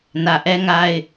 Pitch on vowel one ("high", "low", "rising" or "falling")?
low